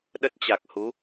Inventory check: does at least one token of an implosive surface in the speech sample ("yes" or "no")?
yes